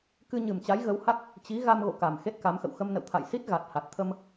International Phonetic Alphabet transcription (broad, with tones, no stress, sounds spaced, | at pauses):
k ɨ˧ ɲ ɨ˨˩ m t͡ɕ a˨˦ j ɣ ə˨˦ w h a˦˥ k̚ | t͡ɕ i˨˦ ɣ a˧ m ɣ o̰˧˨ k a˨˩ m x e˦˥ t̚ k a˨˦ m x ə̰˧˨ w x ə˧ m n ə̰˧˨ w t̪ʰ a̰˧˨ j s i˦˥ t̚ ɣ a˨˩ t̚ h a˨˩ t̚ t̪ʰ ə˧ m